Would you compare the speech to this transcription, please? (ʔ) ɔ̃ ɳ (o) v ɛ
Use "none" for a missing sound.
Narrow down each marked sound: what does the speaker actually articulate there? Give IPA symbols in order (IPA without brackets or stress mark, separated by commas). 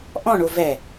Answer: ʔ, o